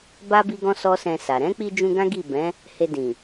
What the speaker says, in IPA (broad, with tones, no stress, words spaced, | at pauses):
ba˦ bi˦ɡɔ̃˦sɔ˦sɛ̃˧ sa˨ ɾɛ̃˨˦k͡pi˧d͡ʒũ˧ ɡã˦ɡi˦˨bɛ̃˨˦ | he˧dĩ˨